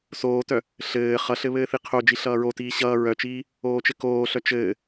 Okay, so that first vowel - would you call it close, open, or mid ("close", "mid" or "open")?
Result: mid